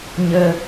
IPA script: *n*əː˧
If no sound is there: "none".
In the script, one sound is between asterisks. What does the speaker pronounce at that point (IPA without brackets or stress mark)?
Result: ɲ